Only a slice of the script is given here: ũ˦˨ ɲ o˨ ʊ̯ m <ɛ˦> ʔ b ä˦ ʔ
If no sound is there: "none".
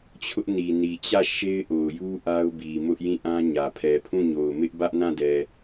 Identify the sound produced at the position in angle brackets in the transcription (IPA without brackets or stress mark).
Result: ɪ˦